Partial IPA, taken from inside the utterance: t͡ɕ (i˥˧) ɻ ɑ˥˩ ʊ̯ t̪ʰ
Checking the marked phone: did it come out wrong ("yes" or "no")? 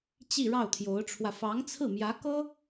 no